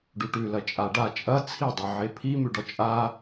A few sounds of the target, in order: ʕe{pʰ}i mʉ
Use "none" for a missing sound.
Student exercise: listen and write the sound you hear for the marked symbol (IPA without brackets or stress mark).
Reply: pʰ